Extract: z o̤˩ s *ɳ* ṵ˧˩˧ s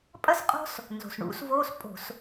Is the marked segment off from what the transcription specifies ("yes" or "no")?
no